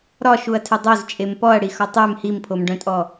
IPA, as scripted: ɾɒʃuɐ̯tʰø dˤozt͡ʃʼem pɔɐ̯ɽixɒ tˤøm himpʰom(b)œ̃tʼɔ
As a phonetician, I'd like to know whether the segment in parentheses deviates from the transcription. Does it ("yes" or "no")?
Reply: yes